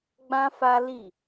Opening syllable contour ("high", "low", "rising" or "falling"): high